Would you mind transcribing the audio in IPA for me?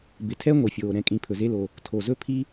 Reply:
b ɪ˨ tʰ ɛ˥ ŋʷ i˩ fʲ oː˩ ɾ ɛ̃˨ kʼ ĩ˨ pʰ ɵ˩ z e˦ l o˨ | tʰ o˨ z ɵ˥ pʰ i˥

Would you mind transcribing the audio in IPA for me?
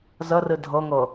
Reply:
z ə r ɨ dʱ ɤ ŋ ɤ

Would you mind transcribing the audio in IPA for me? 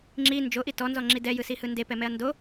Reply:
ŋ͡ǁ i n d͡ʒ o ʔ i t ɔ n z ɔ ŋ͡ǁ i d ɛ j ɯ s i h ɯ n d e p ɛ m ɛ ɐ̯ n d o

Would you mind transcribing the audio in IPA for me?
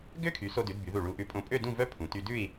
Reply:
ɡ ø˥ kʰ y˩˧ s o˧ d ʉ˩˧ d b y˩˧ ð u˧˩ ɭ u˧ ʔ ʉ˧ pʼ õ˧ pʼ ø˥˧ d ũ˥˧ v œ˥ pʰ ũ˩˧ t y˧ d ʉ˥˧ i̯

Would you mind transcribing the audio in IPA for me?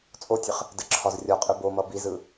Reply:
t͡sʼ o tʲ ə χ | d ə ǁʰ ɒ z rʲ ɒ qʼ ɯ b o m ʌ b i z ɯ

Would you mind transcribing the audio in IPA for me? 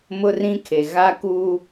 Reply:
m ʊ˦ r ĩ˦ kʰ e˨ ɣ a˦ k uː˦

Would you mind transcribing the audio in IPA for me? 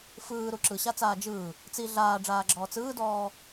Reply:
f ɯː ɾ u ǁ ɯ ɕ a t͡s aː d͡ʒ ɯː | t͡s i ɮ aː ɖ͡ʐ aː ɡ͡ǁ ɔː t͡s ɯː d ɔː

